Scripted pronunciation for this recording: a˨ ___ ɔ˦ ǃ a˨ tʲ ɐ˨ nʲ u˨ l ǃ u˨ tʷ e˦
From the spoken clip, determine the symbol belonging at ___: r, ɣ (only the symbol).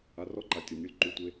r